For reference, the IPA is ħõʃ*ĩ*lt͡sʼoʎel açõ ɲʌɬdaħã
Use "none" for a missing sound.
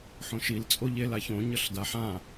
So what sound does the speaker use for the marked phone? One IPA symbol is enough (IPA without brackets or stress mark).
i